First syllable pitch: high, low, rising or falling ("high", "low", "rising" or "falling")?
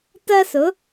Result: high